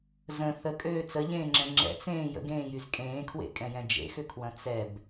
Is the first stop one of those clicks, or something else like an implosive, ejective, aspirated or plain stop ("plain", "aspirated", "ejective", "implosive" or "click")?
ejective